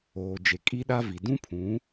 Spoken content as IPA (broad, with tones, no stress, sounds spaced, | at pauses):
oː˨ d͡ʒ e˨ kʼ i˦ ɗ a˦ v i˨ d ũ˦ pʰ ũ˨˦